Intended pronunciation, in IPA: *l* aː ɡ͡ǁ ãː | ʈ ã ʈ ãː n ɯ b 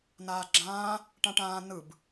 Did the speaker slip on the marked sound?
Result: yes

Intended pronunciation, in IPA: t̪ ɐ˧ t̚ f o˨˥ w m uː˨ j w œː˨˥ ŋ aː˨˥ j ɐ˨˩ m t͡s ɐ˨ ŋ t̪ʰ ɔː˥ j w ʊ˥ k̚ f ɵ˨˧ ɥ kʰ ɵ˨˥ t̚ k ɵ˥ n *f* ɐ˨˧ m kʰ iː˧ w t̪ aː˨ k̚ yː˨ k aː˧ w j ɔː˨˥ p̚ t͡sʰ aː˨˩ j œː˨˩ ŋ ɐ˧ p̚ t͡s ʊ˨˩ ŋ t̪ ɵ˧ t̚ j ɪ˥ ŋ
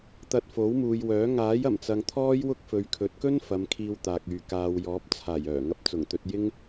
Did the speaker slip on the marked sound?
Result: no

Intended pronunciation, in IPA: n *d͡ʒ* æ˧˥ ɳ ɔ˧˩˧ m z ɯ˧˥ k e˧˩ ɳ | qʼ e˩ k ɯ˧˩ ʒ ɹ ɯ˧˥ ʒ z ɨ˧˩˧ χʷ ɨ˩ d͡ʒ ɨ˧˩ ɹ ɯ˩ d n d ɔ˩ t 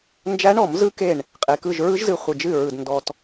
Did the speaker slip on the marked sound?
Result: no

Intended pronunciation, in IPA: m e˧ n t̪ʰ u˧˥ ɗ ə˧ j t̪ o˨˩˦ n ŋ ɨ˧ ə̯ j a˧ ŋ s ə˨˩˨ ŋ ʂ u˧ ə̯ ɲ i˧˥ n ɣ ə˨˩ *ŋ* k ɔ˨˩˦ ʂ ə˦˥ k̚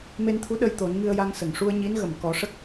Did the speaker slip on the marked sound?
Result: yes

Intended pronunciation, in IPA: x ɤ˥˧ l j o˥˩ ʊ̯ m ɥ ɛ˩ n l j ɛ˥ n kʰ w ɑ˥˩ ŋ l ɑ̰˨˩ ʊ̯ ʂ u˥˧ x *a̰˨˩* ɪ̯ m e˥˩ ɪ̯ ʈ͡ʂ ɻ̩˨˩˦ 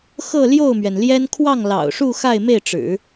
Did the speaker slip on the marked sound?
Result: yes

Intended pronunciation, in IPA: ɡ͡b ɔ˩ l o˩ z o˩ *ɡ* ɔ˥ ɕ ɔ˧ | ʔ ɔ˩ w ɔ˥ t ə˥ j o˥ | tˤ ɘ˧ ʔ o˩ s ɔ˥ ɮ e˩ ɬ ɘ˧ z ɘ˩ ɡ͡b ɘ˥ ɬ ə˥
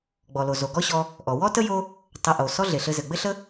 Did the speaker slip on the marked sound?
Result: no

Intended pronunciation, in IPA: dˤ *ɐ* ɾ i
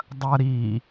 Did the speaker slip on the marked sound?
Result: no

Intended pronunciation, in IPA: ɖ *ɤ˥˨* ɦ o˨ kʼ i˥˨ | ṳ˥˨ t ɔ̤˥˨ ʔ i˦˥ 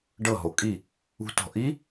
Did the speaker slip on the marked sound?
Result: no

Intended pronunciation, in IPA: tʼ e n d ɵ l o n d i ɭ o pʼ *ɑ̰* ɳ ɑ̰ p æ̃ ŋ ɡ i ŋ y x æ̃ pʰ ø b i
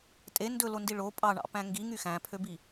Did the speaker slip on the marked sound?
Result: yes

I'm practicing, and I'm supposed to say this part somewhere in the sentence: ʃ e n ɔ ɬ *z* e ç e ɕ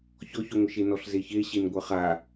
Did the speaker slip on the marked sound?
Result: no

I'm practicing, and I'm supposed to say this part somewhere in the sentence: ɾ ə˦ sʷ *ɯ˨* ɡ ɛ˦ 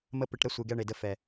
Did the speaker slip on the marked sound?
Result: no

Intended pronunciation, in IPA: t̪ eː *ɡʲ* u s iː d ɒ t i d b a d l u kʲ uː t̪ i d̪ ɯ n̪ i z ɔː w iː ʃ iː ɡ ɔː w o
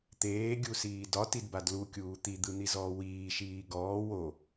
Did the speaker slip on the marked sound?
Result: no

